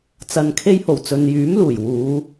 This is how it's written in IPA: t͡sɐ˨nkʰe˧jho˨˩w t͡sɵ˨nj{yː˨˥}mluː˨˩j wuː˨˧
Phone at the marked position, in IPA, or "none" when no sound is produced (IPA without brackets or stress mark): yː˨˥